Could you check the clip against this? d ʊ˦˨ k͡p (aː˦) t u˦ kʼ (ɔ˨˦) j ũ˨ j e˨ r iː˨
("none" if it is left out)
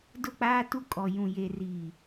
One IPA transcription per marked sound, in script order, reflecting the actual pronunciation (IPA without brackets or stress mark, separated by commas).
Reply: aː˦, ɔ˨